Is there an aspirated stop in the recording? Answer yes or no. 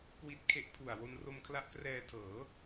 yes